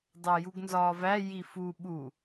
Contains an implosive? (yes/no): yes